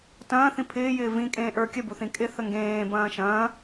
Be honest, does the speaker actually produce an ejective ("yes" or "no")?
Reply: yes